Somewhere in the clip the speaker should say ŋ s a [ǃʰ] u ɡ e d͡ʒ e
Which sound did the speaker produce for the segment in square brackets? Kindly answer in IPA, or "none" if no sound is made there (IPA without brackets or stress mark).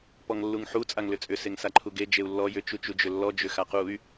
ǃʰ